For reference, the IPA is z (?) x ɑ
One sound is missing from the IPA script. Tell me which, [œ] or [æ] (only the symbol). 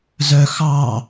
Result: œ